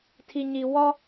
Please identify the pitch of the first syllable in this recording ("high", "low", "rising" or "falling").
high